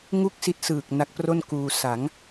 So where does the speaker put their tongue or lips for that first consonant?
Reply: velum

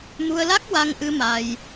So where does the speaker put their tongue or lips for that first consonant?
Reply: lips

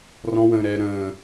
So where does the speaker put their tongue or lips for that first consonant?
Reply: tongue tip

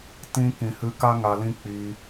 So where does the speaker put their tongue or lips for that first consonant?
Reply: tongue tip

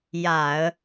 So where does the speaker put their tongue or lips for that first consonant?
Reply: palate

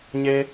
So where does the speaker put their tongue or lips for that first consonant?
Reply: palate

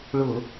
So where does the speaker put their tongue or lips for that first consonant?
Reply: retroflex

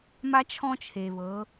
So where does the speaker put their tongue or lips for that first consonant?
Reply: lips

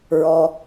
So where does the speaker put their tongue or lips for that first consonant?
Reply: tongue tip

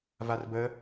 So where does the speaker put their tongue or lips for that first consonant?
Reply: lips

